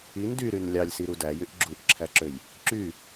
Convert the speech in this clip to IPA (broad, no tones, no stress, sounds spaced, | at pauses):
i n d y ɾ y n lʲ ɑ lʲ s i ɾ u d æ j y ʔ ɡ͡ǁ u ʔ ǁʰ æ ǁ ø j | ǁ y